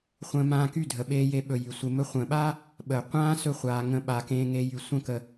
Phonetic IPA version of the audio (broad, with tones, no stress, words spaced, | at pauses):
χʷə̃ː˧mãː˧ky˦˨ dʱə˨ɓeː˧je˧ɓɵ˨ jy˨sʷe˧mɵ˦ χʷə̃ː˨ɓaː˦ | ɓəː˨ qʷãː˦sɵ˧χʷaː˨ ŋə̃˧ɓa˨kẽː˧ ŋe˧jy˨sʷə̃˦˨ kə˨